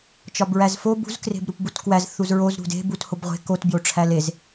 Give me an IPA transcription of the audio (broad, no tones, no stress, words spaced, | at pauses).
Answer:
t͡ʃɒbɹæzfo bṳz kre̤bɾupbutkwæz θuzɹoz ɾṳde̤ buthobʁʷe̤ kot bjoʈ͡ʂʰælez